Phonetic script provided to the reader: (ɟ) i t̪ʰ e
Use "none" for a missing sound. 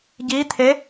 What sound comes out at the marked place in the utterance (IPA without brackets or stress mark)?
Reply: ɟ